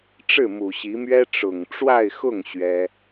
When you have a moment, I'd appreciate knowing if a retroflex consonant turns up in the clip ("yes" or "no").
yes